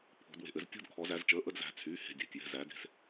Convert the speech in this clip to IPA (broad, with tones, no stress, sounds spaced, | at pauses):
pʰ o̤˩˧ d w e̤˩˧˩ ʔ ɘ˩˧ z tʲ o̤˥˧ d kʰ ɔ˩˧ z æ˩˧ z t͡ʃ əː˩˧˩ ʔ ə˥˧ d z æ̤˩˧˩ t͡sʰ yː˩˧˩ h e̤˩˧˩ dʲ æ̤˩˧˩ tʲ j ɛ̤˩˧˩ z æ˩˧ d e̤˩˧ s